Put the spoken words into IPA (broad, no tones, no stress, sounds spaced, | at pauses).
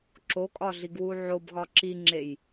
ǁ o kʼ ɒ ɮ i ɡ w u ʕ o b ɣ ɒ ǁ i ŋ͡ǁ e j